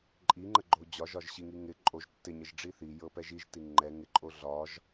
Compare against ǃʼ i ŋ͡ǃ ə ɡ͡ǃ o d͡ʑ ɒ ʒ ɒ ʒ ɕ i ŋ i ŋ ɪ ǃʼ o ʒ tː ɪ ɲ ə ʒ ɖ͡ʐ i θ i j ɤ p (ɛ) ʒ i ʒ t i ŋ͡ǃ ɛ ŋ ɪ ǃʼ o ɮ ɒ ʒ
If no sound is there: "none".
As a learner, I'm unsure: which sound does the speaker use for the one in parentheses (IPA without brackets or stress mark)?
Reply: ɛ